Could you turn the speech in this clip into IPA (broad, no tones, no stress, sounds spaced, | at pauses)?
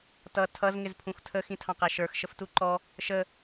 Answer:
t ʌ tʰ ʌ z ŋ ɪ z pʰ ũ x tʰ ə x ĩ tʰ ɑ̃ q æ ʃ ə˞ x ʃ ə f t u ǃ ɔ | ʃ ə